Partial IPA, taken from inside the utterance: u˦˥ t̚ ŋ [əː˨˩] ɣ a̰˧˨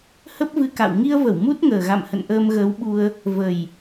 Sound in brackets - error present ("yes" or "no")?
no